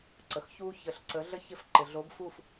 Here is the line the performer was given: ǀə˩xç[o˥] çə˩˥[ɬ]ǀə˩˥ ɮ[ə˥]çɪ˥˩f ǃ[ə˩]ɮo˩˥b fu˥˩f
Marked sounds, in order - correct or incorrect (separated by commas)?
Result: incorrect, correct, correct, incorrect